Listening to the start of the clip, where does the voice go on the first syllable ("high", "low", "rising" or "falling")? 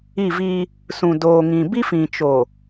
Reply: falling